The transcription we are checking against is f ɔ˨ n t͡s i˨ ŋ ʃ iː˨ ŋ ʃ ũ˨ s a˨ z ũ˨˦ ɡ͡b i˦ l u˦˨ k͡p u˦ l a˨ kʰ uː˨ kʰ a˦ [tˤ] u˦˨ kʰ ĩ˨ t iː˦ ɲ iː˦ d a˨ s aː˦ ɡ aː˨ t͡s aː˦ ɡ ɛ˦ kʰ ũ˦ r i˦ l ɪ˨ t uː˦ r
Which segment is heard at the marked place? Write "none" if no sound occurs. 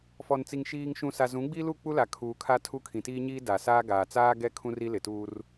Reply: tʰ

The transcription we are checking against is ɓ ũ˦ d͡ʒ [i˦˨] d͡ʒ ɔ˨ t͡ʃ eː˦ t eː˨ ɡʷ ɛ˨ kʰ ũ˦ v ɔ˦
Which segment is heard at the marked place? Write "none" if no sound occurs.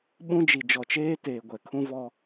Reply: i˨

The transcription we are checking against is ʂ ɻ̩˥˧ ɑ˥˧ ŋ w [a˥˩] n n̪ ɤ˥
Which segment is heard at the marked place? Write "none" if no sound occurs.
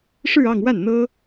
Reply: a˥˩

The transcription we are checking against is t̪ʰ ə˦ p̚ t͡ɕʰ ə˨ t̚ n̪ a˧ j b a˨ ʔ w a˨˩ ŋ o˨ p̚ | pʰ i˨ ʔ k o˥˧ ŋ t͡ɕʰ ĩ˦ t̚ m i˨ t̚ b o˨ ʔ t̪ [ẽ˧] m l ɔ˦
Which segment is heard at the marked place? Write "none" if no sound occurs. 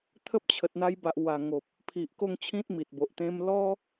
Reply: ẽ˧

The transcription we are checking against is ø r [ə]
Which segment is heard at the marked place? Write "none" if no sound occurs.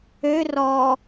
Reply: ɔ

